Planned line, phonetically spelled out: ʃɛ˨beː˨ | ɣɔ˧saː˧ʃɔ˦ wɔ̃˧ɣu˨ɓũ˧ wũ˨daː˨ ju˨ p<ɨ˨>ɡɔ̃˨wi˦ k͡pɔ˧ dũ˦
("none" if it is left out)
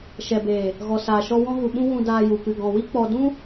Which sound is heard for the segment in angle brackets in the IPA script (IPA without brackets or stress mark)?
ɨ˨